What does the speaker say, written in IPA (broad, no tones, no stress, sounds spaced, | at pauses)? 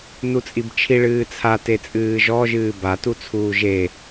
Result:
n u t͡sʼ i b t͡ʃʰ i ɭ ɨː t͡sʰ a t e t͡sʼ ɨː ʒ ɔ ʒ ɨː b a t u t͡sʰ uː ʒ e